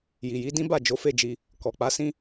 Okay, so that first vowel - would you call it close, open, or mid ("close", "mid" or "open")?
close